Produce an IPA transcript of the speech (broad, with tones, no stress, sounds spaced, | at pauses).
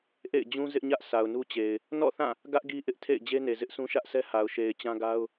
ʔ ḛ˦˨ ɪ̯ d͡ʑ ũ˦ z ɪ˦ ʔ ɲ ä˦ ʔ sʰ a˨ ʊ̯ n u˦ t͡ɕ e˨ ɪ̯ | n ɔ̰˦˨ θ ã˦˨ | ɡ ä˦ ʔ ɡ i˦ ʔ ɪ˦ ʔ tʰ ḛ˦˨ ɪ̯ d͡ʑ e˦ n e˨ z ɪ˦ ʔ sʰ ũ˦ ʃ ä˦ ʔ sʰ ɛ˦ h a˨ ʊ̯ ʃ e˨ ɪ̯ t͡ɕ ã˦ ɡ a˦ ʊ̯